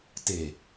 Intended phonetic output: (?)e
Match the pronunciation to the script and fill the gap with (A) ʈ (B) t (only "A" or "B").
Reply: B